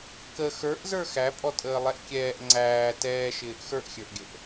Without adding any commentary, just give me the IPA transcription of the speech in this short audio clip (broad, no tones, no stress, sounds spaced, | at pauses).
k ə x ə˞ ʔ z ə˞ x æ pʼ ɔ tʼ əː lˠ ɛ ʔ kʲ ɛː ʔ ŋ͡ǀ æː t ɛː ʃ ɪː ʔ x ə˞ ʔ xʲ ə˞ ʔ ɡʲ ə ʔ